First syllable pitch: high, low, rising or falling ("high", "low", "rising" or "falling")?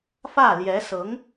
falling